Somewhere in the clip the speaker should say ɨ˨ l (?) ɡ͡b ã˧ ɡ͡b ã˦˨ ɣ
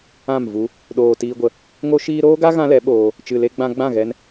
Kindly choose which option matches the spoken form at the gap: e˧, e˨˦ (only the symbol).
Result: e˧